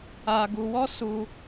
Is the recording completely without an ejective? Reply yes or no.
yes